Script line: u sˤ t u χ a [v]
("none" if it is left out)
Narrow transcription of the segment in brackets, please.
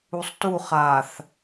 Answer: θ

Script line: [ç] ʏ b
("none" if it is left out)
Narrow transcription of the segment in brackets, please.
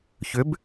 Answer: ç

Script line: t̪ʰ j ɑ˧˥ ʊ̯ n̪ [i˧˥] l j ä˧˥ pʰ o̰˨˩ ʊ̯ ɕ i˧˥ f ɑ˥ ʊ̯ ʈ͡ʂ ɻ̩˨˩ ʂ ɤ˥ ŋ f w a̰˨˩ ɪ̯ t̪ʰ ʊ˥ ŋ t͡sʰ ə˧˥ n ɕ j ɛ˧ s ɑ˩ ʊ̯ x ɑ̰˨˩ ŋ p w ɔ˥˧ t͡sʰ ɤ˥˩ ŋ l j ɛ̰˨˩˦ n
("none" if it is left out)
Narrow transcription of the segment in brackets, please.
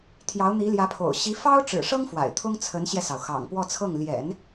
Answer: i˧˥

